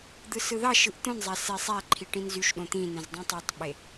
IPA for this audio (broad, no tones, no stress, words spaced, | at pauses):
d̪ɯsɯðɑʃɯʔ t̪õnzˤæ sesˤæǃʰi ʈĩnzyʃɗõ t̪ĩnẽz dˤũtˤɑtˤɓe